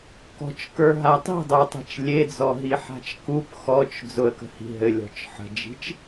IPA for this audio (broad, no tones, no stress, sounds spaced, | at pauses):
k ɔ̤ t͡ʃ k ə˞ ɦ a tˤ i̤ dˤ ə˞ tˤ e̤ t͡ʃ lʲ e d͡z ɔ ɦ i ħ a̤ t͡ʃ k u p x ɔ t͡ʃ d͡z ʊ ə̯ k ə̤ h i̤ ɦ ɘ lʲ ɔ̤ t͡ʃ ħ ə̤ d͡ʒ i̤ t͡ʃ